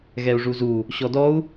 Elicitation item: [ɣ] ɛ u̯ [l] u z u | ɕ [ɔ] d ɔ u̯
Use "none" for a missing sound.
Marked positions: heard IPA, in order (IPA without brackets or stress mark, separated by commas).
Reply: ɣ, ʐ, ɔ